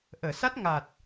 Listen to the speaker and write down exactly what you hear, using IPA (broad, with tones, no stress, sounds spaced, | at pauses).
ʔ əː˨˩˨ s a˦˥ t̚ ŋ a˨˩ t̚